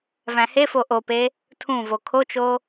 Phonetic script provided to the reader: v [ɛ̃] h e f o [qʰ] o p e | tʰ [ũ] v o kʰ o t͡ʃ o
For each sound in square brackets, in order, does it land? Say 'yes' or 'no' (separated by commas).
no, no, yes